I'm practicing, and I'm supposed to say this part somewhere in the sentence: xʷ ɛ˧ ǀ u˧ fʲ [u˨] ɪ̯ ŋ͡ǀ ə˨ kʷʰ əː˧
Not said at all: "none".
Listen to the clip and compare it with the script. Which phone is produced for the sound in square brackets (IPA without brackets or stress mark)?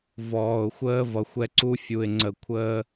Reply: u˨